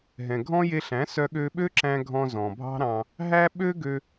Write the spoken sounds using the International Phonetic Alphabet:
ɦɛ̃˨ɡʱɔ̃˦je˧ɬæ̃˨˦ sœ˧ɠø˧ɓø˦ǁæ̃˧ ɡʱɔ̃˧zɔ̃˨bʱɑ̤˦ɾɑ̃˧ | ɦæ˦ɓø˦ɡø˧

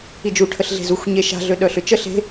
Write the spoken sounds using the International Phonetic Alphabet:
id͡ʒu ʈʰəɬɮe̤zuxʷ ɲeʃa̤ ɮøɗœɬʏt͡ʃə ɬe̤

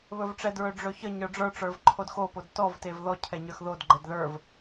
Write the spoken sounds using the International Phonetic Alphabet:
βɵvʈ͡ʂɛ dɹɵɖ͡ʐɵçə ɲə˞ɖ͡ʐə˞ ʈ͡ʂə˞vǃʰodxo podtɔv tevðɔ cʰɛɲə˞xðod ɡ͡ǃɛdðə˞v

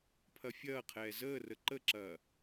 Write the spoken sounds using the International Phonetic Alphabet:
pʰɐfʲɐːqʰɛː zəːrə ǃəǁɐː

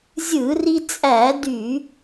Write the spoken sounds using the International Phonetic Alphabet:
zʲɯ˧˩˧ri˧t͡sʼæ˧˩˧ dy˧˩˧

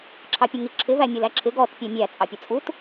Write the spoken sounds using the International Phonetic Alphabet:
ǁʰɑpʲʊŋiǁʰɪ væmʲə˞læǁʰɪ ɡɔt pʲæmʲæ t͡sʼɑpʲʊt͡sʼut

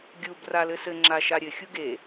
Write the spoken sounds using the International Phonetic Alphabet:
ɡʲub ralɘsɘ ŋ͡ǁaʃaɾʲɘ xʲuɡe

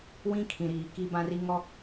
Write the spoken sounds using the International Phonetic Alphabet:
wĩ˦kʰĩ˨ɾiː˨ ki˦bã˦ri˦ ŋɔ˦

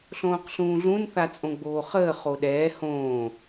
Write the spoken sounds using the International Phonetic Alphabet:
ɬõːqɬũːɮũn θat͡sʼõɡ͡boːχəː χoɗɛː hõː

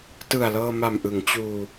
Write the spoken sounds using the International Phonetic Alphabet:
tɯ˨˩a̯lɤː˧ma˨˩mʔɯ˩˦ŋ t͡ɕuː˧

